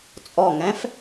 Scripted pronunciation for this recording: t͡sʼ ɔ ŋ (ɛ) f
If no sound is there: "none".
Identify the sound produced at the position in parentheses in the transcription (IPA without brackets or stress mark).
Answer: ɛ̃